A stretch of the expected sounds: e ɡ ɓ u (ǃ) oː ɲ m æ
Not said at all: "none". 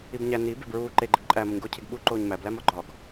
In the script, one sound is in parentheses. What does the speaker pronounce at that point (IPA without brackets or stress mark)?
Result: ǃ